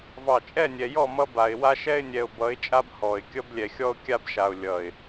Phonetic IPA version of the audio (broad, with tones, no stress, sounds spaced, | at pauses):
v ɑ˨ t͡ʃʼ ɛ˦˨ nʲ ɛ˨ j ɔ˦˨ m ʌ˦ b a˨ ɪ̯ w a˦ ʃ ɛ˦ ɪ̯ nʲ ɛ˨ ʊ̯ b ʌ˨˦ ɪ̯ t͡ʃʼ a˦ b h ɔ˨ ɪ̯ kʲ ʌ˦ b lʲ ɛ˨ xʲ ɔ˦ ʊ̯ kʲ a˦ b ʃ a˨ ʊ̯ lʲ ʌ˨ ɪ̯